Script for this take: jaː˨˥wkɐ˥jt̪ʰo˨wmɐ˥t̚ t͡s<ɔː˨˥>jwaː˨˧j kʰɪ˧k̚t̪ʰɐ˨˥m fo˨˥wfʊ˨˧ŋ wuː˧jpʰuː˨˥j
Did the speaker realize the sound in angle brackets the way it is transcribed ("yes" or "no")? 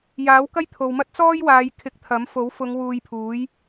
no